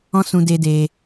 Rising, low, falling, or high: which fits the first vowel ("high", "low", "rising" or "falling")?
high